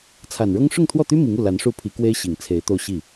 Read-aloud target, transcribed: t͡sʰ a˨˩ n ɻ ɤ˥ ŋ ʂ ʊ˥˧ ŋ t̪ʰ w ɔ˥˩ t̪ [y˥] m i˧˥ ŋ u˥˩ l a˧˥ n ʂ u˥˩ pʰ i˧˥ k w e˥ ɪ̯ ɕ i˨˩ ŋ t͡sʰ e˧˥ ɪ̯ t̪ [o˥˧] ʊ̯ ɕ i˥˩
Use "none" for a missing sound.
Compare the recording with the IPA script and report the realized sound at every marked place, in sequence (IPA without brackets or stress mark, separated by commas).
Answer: y˥, o˥˧